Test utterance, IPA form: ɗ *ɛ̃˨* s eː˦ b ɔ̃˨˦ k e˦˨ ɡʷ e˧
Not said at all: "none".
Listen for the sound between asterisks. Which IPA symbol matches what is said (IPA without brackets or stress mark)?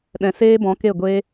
ɛ̃˨